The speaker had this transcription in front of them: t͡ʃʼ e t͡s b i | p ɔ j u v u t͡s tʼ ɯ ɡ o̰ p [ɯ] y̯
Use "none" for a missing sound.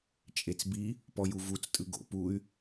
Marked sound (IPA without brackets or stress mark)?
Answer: u